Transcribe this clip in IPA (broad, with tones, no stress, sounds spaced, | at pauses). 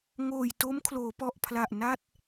ŋ oː˨˩ j t o˦˥ m kʰ l oː˩˦ p ɔ˨˩ ʔ pʰ l a˨˩ ʔ n a˥˩ t̚